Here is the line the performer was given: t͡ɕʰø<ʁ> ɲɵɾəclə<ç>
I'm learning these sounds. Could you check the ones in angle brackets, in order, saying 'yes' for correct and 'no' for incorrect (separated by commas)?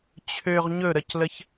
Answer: yes, yes